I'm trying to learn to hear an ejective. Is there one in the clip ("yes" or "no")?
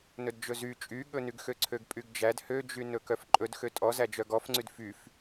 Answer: yes